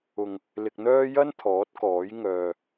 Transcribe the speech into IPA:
ʊ˨ ŋ | l ɪ˧ k̚ n̪ œː˥ j ɐ˥ n t̪ʰ ɔː˨˥ t̚ k ɔː˨˥ j ŋ œː˧

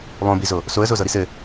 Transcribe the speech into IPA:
lˠ õ b i z o | s o ə̯ z o z ɤ ɾ i s ɘ

